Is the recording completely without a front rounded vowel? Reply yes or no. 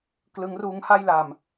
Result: yes